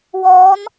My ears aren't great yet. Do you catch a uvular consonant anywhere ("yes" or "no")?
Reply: no